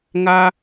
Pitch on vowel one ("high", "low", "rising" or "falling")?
high